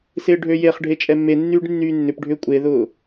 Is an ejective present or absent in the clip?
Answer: present